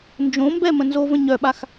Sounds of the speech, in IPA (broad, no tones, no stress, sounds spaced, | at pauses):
n d͡ʒ õ m b ɛ m ə̃ n z o v ə̃ ɲ œ ɓ a x